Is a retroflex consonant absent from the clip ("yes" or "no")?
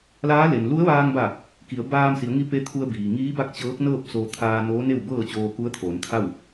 yes